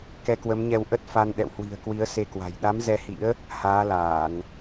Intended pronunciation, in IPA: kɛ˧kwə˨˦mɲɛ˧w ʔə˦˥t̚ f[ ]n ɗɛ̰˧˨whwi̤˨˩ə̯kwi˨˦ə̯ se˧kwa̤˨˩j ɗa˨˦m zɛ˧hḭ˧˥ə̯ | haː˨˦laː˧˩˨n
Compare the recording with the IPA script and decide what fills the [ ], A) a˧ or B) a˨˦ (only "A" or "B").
A